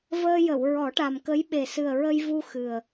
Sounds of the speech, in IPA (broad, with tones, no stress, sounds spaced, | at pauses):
v əː˧ j ə˨˩˨ w ɹ ɔ˨˩˦ ʈ a˨˩ m k ə˧˥ j ɓ e˨˩ s ɨ˨˩ ə̯ ɹ ə˧ j v u˧ x ɨ˨˩ ə̯